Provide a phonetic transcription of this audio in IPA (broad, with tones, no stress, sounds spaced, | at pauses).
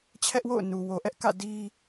t͡ɕʰ ɛ˦ ʔ w o̰˦˨ ʊ̯ n u˨ w o˨ ʔ ɛ˦ ʔ k ä̰˦˨ d i˦